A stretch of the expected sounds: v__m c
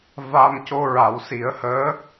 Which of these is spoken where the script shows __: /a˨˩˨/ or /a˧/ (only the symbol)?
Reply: a˧